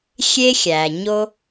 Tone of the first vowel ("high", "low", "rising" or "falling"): high